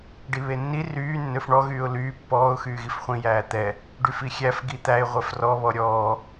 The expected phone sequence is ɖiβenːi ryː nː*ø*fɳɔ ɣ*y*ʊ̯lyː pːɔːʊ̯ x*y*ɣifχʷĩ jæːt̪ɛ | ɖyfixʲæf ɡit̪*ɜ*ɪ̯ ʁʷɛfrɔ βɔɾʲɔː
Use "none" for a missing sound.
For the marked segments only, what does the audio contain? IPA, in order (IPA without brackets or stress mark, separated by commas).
ø, yː, yː, æ